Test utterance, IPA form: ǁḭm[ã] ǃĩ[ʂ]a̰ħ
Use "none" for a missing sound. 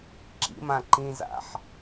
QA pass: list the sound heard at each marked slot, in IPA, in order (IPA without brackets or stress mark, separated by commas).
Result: ã, z